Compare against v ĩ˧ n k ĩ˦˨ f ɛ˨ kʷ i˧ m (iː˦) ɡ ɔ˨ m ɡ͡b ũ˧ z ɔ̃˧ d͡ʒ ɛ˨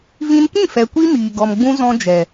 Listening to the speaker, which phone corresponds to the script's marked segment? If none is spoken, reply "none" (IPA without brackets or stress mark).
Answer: iː˨